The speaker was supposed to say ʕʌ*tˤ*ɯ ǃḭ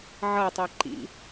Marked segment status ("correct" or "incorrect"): correct